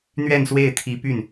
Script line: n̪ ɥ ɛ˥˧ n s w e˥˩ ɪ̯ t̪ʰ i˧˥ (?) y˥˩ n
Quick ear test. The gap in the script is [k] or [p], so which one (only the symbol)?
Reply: p